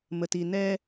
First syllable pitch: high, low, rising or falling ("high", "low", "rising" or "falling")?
low